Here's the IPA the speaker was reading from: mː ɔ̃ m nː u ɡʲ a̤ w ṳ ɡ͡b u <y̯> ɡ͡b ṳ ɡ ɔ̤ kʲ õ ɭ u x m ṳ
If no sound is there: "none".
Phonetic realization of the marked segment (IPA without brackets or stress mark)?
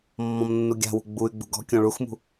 y̯